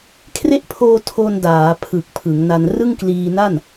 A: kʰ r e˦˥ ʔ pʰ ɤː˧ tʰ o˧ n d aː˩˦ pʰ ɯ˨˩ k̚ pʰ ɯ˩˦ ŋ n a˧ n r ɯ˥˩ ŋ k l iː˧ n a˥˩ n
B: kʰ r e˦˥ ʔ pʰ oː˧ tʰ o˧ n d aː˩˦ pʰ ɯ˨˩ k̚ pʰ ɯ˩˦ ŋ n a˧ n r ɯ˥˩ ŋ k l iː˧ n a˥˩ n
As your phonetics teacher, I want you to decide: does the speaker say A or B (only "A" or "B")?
B